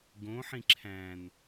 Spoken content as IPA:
ɡ õ ħ ĩ ǁʰ æ̃ n

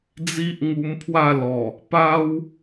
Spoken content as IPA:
d͡z i˦ ʔ ŋ u˧ m pʰ w a˥˧ l ɔ˨˩ | p a˦ w

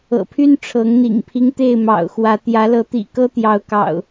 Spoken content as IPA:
ɤ̰˨˩ pʰ y˦ n ʈ͡ʂʰ ɤ˨˦ ŋ n̪ ḭ˨˩ ŋ pʰ i˦ ŋ t̪ e˥˨ ɪ̯ m ɑ̰˨˩ ʊ̯ x w ä˨˦ t̪ j ä˨˦ l ɤ˨˦ t̪ ḭ˨˩ k ɤ˦ t̪ j ɑ˨˦ ʊ̯ k ɑ̰˨˩ ʊ̯

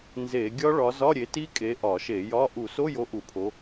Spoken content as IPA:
n z e˧˩˧ ɡʲ ɒ˦˥ ɭ ɒ˨˦ z ɒ˧˥˧ ɾʲ e˨˦ t i˦˥ kʼ e˨˦ ʔ ɒ˧˩˧ ʃ e˧˩˧ j ɒ˧˥˧ ʔ u˧˩˧ s o˧˥˧ j o˨˦ ʔ u˧˩˧ pʰ o˨˦

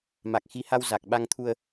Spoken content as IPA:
m a˨˩ k̚ x i˨˦ h a˧ w z a˨˩ k̚ ɓ a˧ ŋ t̪ʰ u˧ ə̯

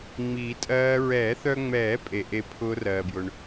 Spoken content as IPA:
ŋ͡m iː˨˩˦ tʼ ɜː˦˥ ɹ ɛː˨˩˦ θ œ˧ ŋ͡m ɛː˨˩˦ pʼ e˩ ʔ e˦˥ pʰ ʊː˦˥ r ɜː˩ b j ʊ˩ ɳ

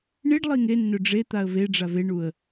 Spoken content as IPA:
ɳ i ɖ lˠ i ŋ e nː ɵ ɖ͡ʐ e t̪ a ə̯ v e ɖ͡ʐ a v e ɳ u ə̯

